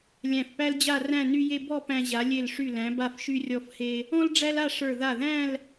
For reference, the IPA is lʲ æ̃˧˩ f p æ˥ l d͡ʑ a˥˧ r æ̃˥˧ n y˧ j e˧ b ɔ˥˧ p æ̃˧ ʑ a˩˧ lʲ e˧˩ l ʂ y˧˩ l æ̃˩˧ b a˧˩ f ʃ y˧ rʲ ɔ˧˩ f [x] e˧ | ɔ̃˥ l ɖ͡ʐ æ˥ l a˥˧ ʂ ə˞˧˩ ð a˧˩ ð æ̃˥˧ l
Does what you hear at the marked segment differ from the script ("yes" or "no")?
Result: yes